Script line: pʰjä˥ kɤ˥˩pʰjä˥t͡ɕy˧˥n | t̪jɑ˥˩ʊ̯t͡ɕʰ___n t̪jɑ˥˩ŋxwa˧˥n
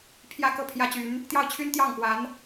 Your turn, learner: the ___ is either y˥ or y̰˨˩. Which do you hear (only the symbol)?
y˥